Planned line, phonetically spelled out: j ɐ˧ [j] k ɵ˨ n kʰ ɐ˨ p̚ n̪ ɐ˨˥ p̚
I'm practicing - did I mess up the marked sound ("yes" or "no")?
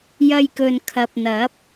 no